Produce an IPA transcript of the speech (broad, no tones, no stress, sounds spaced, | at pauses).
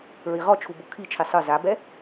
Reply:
ɹ i ʁ ɔ t͡ʃʰ u b o kʰ i t͡ʃʰ i sˤ ɯ z a b ɛ